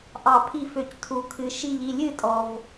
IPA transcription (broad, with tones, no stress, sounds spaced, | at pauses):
ʔ ɑ˧˩ pʰ i˥˩ f ø˧˩ c tʰ u˩ kʰ ɨ˩ ʃ i˧˩ ʎ i˥˩ lʲ ɨ˥˩ tʼ ɔ˩ v